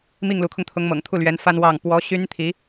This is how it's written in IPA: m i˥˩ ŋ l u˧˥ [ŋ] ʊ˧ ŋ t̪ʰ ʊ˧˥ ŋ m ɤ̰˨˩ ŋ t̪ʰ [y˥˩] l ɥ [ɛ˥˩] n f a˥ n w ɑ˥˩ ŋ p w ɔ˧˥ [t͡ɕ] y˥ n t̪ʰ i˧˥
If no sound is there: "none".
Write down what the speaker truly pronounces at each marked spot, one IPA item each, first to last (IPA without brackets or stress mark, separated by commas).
kʰ, u˥˩, ɛ˧˥, ɕ